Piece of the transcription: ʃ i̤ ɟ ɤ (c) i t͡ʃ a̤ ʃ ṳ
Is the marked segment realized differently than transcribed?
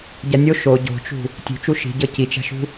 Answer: no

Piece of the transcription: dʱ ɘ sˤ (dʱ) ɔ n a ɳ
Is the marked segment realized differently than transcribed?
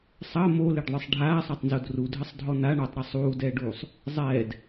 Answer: no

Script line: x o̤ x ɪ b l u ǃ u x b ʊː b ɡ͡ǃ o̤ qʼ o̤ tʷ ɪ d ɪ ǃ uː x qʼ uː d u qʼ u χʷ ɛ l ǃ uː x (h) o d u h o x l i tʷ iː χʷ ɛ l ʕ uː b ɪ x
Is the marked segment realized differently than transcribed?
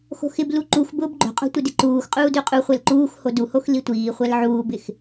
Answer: no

